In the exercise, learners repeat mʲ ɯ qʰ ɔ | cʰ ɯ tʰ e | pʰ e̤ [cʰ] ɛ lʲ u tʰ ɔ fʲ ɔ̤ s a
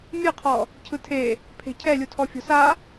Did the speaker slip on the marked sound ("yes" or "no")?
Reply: no